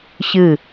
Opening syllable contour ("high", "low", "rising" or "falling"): falling